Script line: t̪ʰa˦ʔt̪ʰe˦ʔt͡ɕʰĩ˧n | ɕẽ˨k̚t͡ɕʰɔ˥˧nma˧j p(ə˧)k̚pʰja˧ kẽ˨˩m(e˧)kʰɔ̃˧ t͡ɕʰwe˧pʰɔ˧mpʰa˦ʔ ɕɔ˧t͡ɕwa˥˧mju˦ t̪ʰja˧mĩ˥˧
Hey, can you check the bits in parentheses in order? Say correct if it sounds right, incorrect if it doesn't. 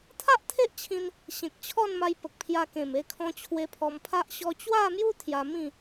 incorrect: ə˨, correct

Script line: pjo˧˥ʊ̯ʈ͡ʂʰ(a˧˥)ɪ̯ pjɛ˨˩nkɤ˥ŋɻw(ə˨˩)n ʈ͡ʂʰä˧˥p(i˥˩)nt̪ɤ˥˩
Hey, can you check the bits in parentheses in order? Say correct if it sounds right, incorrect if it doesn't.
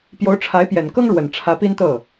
correct, correct, incorrect: i˥

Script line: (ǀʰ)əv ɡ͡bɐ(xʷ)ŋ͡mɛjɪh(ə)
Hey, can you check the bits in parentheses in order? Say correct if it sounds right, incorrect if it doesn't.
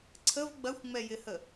correct, correct, correct

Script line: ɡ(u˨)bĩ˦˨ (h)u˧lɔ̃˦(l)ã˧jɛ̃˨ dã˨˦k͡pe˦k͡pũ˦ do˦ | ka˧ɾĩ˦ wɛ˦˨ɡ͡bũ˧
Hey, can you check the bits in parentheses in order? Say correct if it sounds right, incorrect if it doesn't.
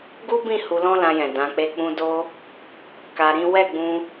incorrect: u˦, correct, correct

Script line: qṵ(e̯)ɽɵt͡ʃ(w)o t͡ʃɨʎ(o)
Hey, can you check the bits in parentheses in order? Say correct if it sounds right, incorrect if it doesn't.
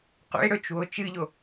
correct, correct, correct

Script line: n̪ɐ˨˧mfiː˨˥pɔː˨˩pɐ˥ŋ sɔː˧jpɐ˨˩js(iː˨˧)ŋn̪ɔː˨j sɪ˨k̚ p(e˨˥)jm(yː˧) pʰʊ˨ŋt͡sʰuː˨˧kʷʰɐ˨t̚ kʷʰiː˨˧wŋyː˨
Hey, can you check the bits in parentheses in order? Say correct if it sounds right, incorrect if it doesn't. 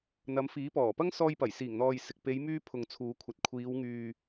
incorrect: iː˨˩, incorrect: e˨˧, correct

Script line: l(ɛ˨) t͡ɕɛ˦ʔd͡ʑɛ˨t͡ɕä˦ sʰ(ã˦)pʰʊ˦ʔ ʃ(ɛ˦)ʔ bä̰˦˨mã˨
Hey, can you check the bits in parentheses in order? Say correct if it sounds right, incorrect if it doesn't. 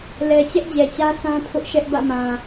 correct, correct, correct

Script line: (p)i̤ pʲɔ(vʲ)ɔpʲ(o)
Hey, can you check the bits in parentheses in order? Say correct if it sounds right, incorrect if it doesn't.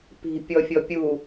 correct, incorrect: fʲ, incorrect: u

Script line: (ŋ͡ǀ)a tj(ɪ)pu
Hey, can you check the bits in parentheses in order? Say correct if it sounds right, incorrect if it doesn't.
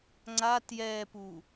correct, incorrect: ɛ

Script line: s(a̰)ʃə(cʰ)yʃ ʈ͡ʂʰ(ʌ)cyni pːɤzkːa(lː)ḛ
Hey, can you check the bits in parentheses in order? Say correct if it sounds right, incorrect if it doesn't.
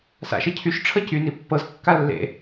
correct, correct, correct, correct

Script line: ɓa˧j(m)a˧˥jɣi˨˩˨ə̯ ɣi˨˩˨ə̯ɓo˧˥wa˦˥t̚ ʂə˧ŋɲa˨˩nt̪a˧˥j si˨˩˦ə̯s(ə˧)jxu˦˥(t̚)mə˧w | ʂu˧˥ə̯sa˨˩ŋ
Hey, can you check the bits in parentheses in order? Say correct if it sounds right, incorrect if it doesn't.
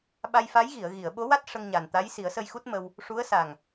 incorrect: f, correct, correct

